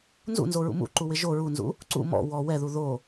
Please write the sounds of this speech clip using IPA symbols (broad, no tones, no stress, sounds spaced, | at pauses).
n z ṵ n z o ɹ ṵ m ṵ ǃ u w ɪ ʒ o ɹ u n z ṵ | ǀ ṵ m ɔ̰ w ɔ w ɛ ð u ð o